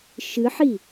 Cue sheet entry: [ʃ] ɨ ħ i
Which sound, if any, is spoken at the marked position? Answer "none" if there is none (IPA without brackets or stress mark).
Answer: ʃ